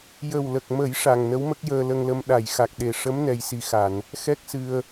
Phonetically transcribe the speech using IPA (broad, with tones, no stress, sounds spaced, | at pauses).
j ə˨˩ w l ə˨˩ k̚ m ə˨˩˦ j ʂ a˨˩ ŋ n ə˧˥ w m ə˦˥ k̚ j əː˧ l ə˧ ŋ l ə˧ m ɗ a˨˩˨ j x a˨˩ k̚ ɗ e˨˩ ʂ ə˧˥ m n ɛ˨˩ j s i˨˩ x a˨˩˨ n | x ɛ˦˥ k̚ s ɨ˧ ə̯